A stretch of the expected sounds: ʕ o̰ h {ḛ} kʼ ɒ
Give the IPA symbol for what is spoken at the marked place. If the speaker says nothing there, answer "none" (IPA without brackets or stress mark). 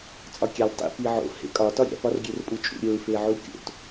ḛ